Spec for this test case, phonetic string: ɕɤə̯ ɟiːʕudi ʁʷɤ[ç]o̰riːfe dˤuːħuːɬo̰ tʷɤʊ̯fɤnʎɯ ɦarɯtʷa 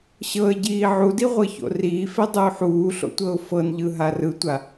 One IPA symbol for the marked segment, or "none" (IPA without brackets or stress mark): ç